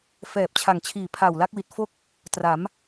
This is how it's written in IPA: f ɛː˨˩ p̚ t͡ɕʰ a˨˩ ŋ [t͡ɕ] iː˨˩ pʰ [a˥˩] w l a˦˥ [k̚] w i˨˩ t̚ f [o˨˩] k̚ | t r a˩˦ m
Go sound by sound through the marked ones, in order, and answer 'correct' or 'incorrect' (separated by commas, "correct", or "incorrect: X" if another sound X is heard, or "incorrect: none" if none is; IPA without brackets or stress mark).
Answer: incorrect: t͡ɕʰ, incorrect: a˨˩, correct, incorrect: o˥˩